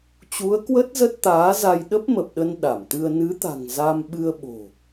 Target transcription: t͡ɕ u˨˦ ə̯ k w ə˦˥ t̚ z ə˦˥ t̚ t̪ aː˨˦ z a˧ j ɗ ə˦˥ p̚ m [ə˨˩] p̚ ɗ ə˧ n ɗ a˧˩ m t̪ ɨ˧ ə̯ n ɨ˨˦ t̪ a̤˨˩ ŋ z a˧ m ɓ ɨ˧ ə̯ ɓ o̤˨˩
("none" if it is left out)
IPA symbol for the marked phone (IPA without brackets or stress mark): ə˨˩